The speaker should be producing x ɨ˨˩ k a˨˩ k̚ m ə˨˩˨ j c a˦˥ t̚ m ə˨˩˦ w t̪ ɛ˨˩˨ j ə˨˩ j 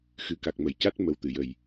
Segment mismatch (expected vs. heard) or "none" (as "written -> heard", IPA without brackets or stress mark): ɛ˨˩˨ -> ɨ˨˩˨